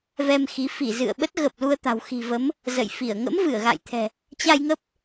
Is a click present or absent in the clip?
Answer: absent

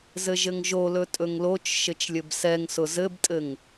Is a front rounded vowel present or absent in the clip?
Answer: absent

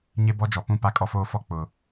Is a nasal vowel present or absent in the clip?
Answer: present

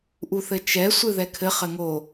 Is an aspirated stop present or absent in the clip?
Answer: present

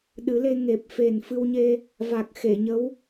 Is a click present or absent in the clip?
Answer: absent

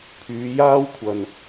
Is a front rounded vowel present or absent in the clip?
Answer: present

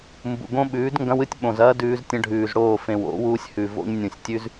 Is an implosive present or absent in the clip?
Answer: present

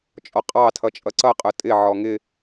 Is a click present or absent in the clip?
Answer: present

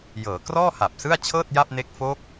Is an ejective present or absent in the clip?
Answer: absent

